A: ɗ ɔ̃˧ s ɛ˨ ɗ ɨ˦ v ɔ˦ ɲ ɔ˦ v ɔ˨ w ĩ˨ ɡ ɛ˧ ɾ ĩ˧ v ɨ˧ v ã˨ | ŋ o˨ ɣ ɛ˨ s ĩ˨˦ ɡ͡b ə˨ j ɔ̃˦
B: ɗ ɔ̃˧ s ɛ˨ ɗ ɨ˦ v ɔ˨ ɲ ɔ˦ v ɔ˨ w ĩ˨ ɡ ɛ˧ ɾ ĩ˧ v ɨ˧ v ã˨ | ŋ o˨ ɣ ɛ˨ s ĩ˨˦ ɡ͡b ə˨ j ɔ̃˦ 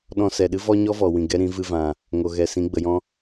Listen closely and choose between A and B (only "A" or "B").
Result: A